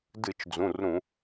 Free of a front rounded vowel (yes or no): yes